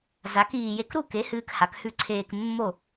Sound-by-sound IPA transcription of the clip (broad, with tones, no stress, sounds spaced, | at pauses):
z a˨˥ k iː˧ j e˧ k ɾ u˥˩ k e˨˥ h ɨː˧ k h a˨˥ k h ʉ˥˩ ǀʰ eː˧ k mː o˥˧